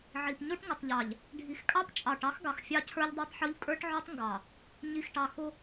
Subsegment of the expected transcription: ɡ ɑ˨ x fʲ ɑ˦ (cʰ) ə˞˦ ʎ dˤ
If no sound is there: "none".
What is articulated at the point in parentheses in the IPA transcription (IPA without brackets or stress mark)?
cʰ